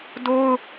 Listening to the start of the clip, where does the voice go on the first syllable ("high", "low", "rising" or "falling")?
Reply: high